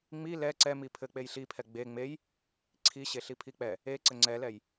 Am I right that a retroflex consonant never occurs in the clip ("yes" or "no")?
yes